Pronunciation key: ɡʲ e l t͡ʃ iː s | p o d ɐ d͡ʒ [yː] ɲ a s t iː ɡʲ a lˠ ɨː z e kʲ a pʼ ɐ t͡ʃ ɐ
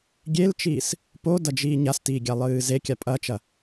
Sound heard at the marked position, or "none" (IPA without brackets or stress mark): iː